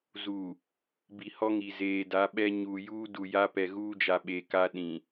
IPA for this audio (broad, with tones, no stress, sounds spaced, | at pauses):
z u˨ | b i˨ h ɔ˦ ŋ i˨ z eː˨ d a˨˦ ɓ ɛ˦ ɲ uː˨ j uː˦ d u˨ j a˦ p ɛ˨ ɣ uː˦ d͡ʒ a˨ ɓ e˨ k a˦ ɗ ĩ˨